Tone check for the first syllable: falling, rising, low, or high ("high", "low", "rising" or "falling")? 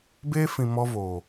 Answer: high